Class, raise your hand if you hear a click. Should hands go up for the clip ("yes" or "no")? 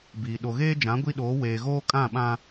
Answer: no